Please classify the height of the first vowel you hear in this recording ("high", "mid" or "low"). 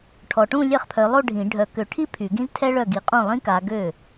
mid